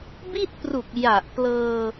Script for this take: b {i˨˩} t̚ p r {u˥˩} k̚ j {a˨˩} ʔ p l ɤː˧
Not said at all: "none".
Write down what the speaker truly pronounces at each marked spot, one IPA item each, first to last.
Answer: i˥˩, u˨˩, a˨˩

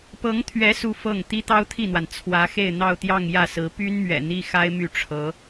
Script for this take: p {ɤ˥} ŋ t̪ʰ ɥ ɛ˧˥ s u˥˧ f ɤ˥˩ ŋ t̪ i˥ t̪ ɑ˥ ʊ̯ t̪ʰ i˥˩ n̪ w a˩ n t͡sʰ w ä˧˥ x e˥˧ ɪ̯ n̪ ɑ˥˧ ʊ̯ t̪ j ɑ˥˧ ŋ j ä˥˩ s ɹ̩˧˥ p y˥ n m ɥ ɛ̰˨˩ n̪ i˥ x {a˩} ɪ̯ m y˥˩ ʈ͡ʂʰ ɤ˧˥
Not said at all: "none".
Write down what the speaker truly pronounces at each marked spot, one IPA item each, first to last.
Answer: ɤ˧˥, a˥

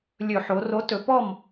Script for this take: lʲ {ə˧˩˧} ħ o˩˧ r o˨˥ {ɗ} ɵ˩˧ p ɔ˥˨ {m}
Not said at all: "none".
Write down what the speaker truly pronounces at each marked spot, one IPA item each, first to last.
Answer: ɵ˧˩˧, t, m

